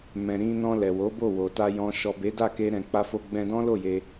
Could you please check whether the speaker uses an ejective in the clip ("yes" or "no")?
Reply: no